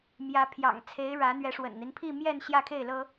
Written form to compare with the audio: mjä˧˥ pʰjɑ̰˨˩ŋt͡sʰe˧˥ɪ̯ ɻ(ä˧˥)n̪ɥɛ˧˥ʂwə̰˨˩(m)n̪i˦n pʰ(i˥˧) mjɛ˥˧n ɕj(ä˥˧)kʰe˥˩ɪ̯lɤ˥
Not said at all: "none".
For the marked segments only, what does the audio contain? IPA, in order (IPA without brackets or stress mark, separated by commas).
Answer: ä˧˥, n, i˥˧, ä˥˧